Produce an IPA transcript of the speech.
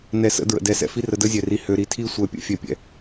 n ɛ˨ s ə̰˦ d ɹ ə̰˨ d ɛ˨ s ɛ̰˨ f i˦ r ə˨ d ə˦ zʲ ɛ˨ r i˨ h ø˨ ɾ i˨ tʰ i˦ sʷ ɛ˨ pʲ ə̰˦ fʲ ɛ˨ pʲ ɛ̰˨

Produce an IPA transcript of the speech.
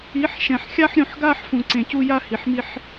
i˨˦ ħ ʃ ɛ̃˨ ħ xʲ a˦ ħ ɾʲ ũ˨ ħ ɡ aː˦ ħ f ũ˨ ǀ ẽ˨ c u˦ j a˦ h i˨ ħ m i˦ ħ

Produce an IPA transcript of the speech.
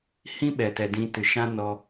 h ĩ˦ ɓ ɛ˨ t ɛ˨ d ĩ˧ t ɨ˨ ʃ ã˦ n ɔ˧

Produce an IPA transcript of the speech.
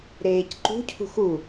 ɾ eː c ǃ ṳ cʰ ṳ x u

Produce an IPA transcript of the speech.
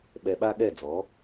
ɓ ɛ˧ ɓ a˦ ɠ ɛ˦˨ d͡z ɔ˨˦

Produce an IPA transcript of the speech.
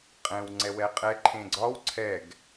qʼ ɛ̃ w ŋ͡ǀ ɛ w ɛ qʼ ɛ ǃʰ ẽ ɡ͡ǀ ɒ w ǀʰ ɛ ɡ

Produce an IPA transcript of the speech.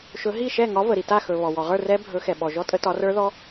ʃ ɵ˨˦ ɦ i˥˨ ʃ ɛ˥˨ ŋ ɒ˨˦ v ə˩ ɾ i˩ t a˥˨ x ɵ˩ β ɔ˩ w ɔ˩ ʁ ə˞˥˨ r ɛ˦˥ bʱ ɵ˨˦ x ɛ˩ ɓ ɔ˩ ʒ ɔ˦˥ tʼ ə˨˦ t ɒ˨˦ r ə˞˦˥ ð ɔ˦˥

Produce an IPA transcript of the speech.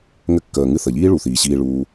ŋ ɘ˧ kː əː˨ ŋ ɨ˧ θ ə˨ ʎ iː˦ ɭ u˨ θ iː˨ ɕ iː˧ ɭ uː˧

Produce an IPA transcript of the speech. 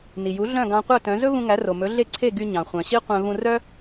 n i˩ j u˩˥ ɮ œ̃˥˩ ɡ ɑ̃˧ qʷ œ˥˩ t œ̃˩˥ z ɵ˥ v ũ˧ ŋ æ˩˥ r o˩ m ɵ˩˥ ɮ e˥˩ ǀʰ e˥˩ ɡ y˧ ɲ ɑ̃˩ χʷ œ̃˩ ɕ i˥ qʷ œ̃˧ v ũ˧ r œ˥

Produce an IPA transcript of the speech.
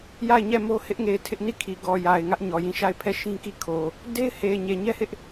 j a˦˨ ɪ̯ ɲ ɛ˦˨ m o˦ h ɪ˦ ʔ ŋ e˨ ɪ̯ tʰ ɪ˦ ʔ n i˦˨ kʰ i˨ ɡ ɔ˨ j a˨ ɪ̯ ŋ ä˦ ʔ ɲ ɔ˨ j ĩ˦˨ ʃ a˦˨ ɪ̯ pʰ ɛ˦˨ ʃ ĩ˦ k i˦˨ kʰ o˨ | d e˦ ɪ̯ h e˨ ɪ̯ ɲ e˨ ɲ ɛ˦ h ɪ˦ ʔ

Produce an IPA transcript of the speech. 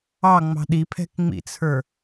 ɑ ŋ͡m ɑ̤ ɗ i pʰ ɛ̤ k ŋ͡m ḭ t͡sʰ ə˞

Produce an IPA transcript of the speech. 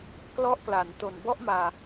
k l ɔ˥˩ ʔ k l a˩˦ n t o˨˩ n b ɔ˥˩ ʔ m aː˨˩

